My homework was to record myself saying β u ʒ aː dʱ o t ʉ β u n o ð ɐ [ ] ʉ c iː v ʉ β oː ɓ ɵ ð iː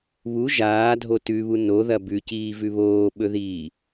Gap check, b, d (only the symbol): b